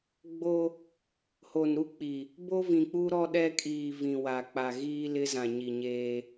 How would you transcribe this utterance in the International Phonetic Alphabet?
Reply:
ɡ͡b o˦ | h o˨ n ɾ u˦ k͡p i˨ | b o˦ v ĩ˨ k͡p u˦ ɾ ɔ˦ ɗ ɛ˦ kʼ iː˨ v ĩ˨ w a˨ k͡p a˨ ɣ iː˦ l ɪ˦ z ã˨ ɲ i˨ ɲ eː˦

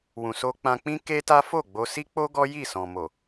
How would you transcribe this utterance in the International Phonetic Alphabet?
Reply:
w ũ˨ s o˧ k͡p ã˧ k͡p ĩ˦ k e˦ t a˦ f o˦˨ ɡ͡b o˧ s i˦ k͡p o˦ ɡ ɔ˦ j i˦˨ s ɔ̃˨ m o˨

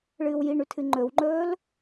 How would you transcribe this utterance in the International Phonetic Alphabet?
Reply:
ɭ ɨː w j i ɳ ʉ tʰ ɨ ŋ͡ǃ ɵ w ŋ͡ǃ ɵː l

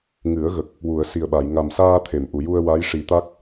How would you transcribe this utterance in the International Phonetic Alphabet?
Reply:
ŋ ɨ˨˩˦ ə̯ ɣ ə˨˩ k̚ | w u˨˩˨ ə̯ s i˨˩ ə̯ ɓ a˨˩˨ j ŋ a˨˩ m s aː˧ t̪ʰ e˨˩˨ m ʔ u˨˩˨ j u˧ ə̯ w a˧˥ j ʂ i˨˩˦ t̪ a˦˥ k̚

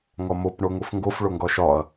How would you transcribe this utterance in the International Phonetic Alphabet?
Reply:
ŋ ɒ m o p ɳ o ŋ o f ŋ ɡ o f ɭ o ŋ ɡ ɒ ʃ ɒ ɐ̯

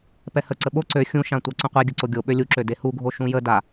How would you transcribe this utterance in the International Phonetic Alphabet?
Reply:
p ɛ h ə ǀ ə ɓ o ǀ ø xʲ ũ ʃ ã tʷ a ǀ ũ qʷ e ɡʲ ə ǀ o ɡʲ o ɓ ø lʲ u ǁ ø d e h u ɡʱ o ʃ ũ j ə d a

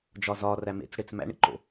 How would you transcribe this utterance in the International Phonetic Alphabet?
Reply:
d͡ʒ ɒ z ɒ r æ m ḛ t͡s ɽ e t͡s m æ̰ ɳ ḭ ǃ o̰

